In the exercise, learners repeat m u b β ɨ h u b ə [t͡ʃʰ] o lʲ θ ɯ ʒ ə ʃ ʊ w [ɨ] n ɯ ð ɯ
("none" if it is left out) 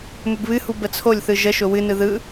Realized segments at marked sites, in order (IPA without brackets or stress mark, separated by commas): t͡sʰ, ɨ